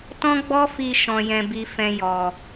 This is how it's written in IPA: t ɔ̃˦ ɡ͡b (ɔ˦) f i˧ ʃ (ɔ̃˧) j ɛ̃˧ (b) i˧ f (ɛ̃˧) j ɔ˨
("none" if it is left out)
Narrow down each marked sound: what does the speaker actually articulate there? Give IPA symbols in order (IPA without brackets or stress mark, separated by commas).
ɔ˦, ɔ̃˧, b, ɛ̃˧